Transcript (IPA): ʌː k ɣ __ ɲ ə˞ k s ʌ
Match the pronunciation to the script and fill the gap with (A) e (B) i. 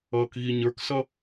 B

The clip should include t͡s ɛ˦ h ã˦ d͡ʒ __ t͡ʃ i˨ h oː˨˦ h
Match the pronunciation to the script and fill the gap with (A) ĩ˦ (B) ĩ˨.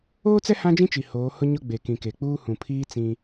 A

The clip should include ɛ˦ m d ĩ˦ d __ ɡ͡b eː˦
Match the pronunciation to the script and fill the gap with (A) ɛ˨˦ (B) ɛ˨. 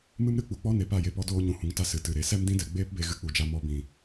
B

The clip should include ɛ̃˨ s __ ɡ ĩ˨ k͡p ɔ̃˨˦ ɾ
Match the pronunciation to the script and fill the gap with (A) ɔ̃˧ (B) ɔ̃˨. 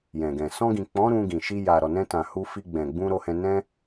A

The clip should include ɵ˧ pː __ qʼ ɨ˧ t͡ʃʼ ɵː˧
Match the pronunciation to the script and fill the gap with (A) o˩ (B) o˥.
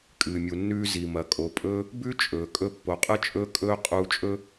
A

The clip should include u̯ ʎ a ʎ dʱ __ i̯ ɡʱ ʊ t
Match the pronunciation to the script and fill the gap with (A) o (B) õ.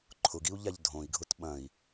B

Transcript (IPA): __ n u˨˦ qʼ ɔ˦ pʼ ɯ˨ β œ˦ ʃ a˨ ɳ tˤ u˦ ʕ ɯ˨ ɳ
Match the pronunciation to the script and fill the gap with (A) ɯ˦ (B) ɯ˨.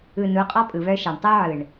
B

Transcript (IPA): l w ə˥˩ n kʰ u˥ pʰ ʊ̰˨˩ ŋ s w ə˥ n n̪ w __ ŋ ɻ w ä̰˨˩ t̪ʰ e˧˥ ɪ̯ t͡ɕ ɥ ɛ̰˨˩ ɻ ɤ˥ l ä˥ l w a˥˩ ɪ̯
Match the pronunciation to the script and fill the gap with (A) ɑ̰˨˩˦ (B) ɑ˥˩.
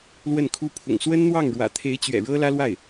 B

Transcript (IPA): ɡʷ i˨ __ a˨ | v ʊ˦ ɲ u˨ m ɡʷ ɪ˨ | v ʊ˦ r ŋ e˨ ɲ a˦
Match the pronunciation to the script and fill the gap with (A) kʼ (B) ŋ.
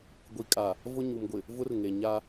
A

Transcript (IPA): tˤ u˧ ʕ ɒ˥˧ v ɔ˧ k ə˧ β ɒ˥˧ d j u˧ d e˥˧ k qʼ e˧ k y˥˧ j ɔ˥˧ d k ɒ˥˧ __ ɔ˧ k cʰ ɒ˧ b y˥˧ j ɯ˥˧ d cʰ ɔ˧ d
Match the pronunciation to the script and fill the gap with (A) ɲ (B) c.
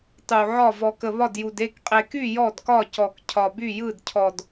B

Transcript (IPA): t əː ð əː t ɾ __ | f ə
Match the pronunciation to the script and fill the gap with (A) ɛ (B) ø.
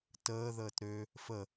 B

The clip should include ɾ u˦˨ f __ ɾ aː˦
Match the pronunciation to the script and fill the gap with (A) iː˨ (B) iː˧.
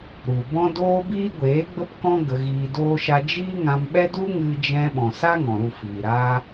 A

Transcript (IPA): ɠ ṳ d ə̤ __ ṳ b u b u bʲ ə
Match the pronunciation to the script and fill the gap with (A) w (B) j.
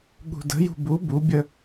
B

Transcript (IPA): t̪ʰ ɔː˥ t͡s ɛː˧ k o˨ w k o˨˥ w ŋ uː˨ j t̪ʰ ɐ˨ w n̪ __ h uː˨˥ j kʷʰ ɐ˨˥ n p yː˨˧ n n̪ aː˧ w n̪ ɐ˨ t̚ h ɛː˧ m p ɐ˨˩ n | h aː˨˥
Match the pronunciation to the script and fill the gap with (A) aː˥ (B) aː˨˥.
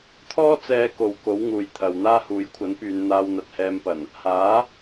A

